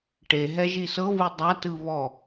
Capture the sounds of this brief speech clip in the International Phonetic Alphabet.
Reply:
ʈ e ɦ ɛ ʒ i s ɤ β ɯ dˤ a t ɯ β ɔ

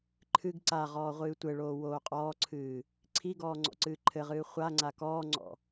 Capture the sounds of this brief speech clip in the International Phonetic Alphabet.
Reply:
ǃʰ ɨ ɡ ǀ a ʁ ɔː ʁʷ ɨː tʷ ɘ ɭ oː w oː qʼ ɔː ǀʰ ɨː | ǀʰ i ɡ ɔː ŋ͡ǀ ɔ̰ ǀ ɨː ǃʰ ɘ ʁ ɨː χʷ a ŋ͡ǀ a k ɔː ŋ͡ǀ ɔ̰

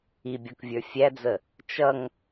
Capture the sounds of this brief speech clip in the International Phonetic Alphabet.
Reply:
i bʲ ɔ k vʲ ə˞ fʲ æ d͡z ə | t͡ʃ ʌ ŋ

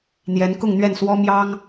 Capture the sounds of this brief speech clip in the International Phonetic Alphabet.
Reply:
n̪ j ɛ˧˥ n k ʊ˥˧ ŋ n̪ ɥ ɛ˥˩ n s w ɔ˥ m j ɑ˥ ŋ

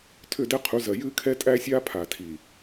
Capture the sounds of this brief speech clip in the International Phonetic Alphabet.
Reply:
tʰ ʏ˦˨ d ɛ˦ qʰ u˨˦ z ɜ˨ j ɨː˦ kʰ ɛ˦ tʼ æ˦ sʲ aː˦ pʰ a˨ tʰ i˨

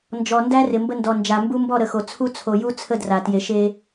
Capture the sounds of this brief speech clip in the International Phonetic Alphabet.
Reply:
n d͡ʒ ɔ˨ n d æ˦ r ɪ˨ m b ə˦ n d ɔ˨ n d͡ʒ a˨ m b u˦ m b ɔ˦˨ ɾ ə˨ x o˨ t͡sʰ u˦ t͡sʰ o˨ j u˦ t͡sʰ ə˦ d r a˨ t j e˨ ʃ e˦

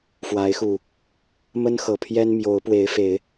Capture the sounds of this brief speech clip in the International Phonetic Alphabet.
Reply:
f w a˨˦ ɪ̯ x u˨˩ | m ə˦ n x ɤ˨˩ pʰ j ɛ˦ n m j o˨˦ ʊ̯ p w e˨˦ ɪ̯ f e˨˦ ɪ̯

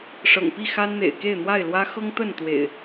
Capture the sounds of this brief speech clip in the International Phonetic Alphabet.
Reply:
ʂ ɤ̰˨˩ ŋ p i˥˨ x a˦ n n̪ ḛ˨˩ ɪ̯ k e˥˨ ɪ̯ n̪ w a˥˨ ɪ̯ l w ä˦ x ɤ˦ ŋ t̪ ə˥˨ n t̪ w ḛ˨˩ ɪ̯

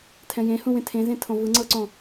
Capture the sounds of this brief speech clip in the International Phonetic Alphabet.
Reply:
tʰ ɛ̃ j ẽ h ũ w ẽ tʰ ẽ z ẽ tʰ õ v ɯ ŋ͡ǀ ɤ ǀ õ

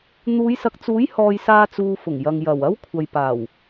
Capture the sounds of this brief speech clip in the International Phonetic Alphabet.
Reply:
n̪ uː˨˧ j s ɐ˨ k̚ t͡s uː˨˥ j h ɔː˨ j s aː˧ t͡s uː˨ f ʊ˨˩ ŋ j ɐ˨ ŋ j ɐ˨˩ w ɐ˥ w kʷʰ ɐ˨ j p aː˨˩ w

